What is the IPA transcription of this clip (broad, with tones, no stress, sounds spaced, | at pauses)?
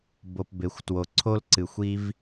b o˨ p b e˨ xʷ t w o˨ ǀʰ o˥ l ǀ ɨ˨ xʷ i˥ v